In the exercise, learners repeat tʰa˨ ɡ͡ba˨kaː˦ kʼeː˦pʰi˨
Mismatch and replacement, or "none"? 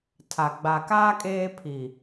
none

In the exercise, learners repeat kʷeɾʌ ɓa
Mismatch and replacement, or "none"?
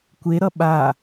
none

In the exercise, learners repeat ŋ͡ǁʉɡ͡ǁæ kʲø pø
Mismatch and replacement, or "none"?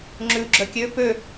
æ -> œ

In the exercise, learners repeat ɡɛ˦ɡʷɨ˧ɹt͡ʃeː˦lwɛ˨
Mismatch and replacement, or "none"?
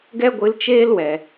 ɹ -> l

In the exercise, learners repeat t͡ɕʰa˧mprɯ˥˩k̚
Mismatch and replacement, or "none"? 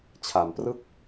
none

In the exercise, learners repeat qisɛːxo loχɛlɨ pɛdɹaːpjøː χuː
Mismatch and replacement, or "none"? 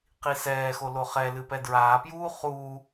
øː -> uː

